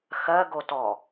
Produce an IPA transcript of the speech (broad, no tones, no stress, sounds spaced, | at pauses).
x ɜ ɡ o t ɔ